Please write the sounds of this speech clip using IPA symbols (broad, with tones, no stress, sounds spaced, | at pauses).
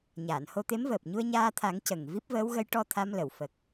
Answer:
ɲ aː˨˩˨ n h o˧ t̪ e˧˥ m v əː˨˩ p̚ ɲ u˧ ə̯ ɲ aː˧ t̪ʰ a˨˩˦ ŋ c ə˨˩ ŋ v i˦˥ p̚ v əː˧˥ w ɣ ə˧˥ j ʈ ɔ˧ t̪ʰ a˧ m l ə˨˩˨ w f ə˨˩ k̚